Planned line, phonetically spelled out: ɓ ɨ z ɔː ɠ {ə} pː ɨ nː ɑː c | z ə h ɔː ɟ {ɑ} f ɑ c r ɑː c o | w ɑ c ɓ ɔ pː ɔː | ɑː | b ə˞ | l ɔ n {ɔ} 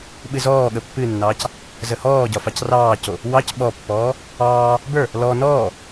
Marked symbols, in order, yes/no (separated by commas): yes, no, no